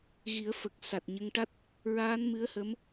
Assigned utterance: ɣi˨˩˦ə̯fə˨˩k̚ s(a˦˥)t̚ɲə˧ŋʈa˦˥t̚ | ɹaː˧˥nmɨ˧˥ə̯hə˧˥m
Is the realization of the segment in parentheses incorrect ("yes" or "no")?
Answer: yes